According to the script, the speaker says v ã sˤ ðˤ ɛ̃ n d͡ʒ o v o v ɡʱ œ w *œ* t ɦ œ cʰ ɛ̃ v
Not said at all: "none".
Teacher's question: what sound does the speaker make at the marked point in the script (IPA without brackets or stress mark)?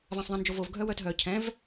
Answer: œ